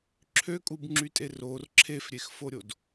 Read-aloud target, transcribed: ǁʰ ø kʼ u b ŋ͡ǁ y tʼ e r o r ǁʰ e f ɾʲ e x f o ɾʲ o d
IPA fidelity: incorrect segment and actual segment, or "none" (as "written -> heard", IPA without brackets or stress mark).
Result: none